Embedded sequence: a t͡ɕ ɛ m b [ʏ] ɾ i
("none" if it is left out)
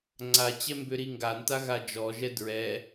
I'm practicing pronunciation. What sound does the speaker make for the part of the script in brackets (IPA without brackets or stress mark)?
ʏ